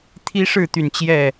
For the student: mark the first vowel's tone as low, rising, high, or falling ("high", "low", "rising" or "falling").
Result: high